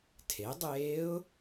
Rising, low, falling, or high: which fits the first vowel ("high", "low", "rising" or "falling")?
rising